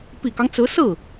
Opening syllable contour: low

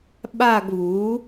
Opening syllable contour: falling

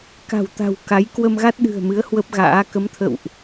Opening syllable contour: low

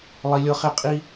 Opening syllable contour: high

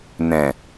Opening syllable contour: low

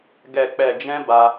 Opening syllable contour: low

